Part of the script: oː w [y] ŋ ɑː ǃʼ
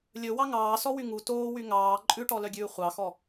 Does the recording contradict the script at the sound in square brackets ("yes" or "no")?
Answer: no